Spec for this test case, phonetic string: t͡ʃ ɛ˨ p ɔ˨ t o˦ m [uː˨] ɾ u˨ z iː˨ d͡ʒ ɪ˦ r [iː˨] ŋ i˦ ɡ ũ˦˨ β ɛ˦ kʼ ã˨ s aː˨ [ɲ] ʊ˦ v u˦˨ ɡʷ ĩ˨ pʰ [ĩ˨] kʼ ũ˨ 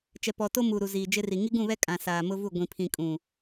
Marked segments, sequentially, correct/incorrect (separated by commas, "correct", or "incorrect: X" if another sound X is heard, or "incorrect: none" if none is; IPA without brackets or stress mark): correct, incorrect: i˨, incorrect: m, correct